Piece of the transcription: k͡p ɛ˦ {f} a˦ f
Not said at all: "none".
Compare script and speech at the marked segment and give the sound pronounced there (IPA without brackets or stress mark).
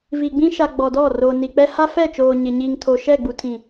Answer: h